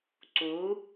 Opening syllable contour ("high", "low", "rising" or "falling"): rising